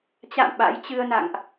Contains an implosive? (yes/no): yes